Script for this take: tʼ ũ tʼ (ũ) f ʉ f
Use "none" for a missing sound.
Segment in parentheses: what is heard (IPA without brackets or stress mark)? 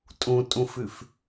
ũ